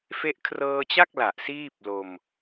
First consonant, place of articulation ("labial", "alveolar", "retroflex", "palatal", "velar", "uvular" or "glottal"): labial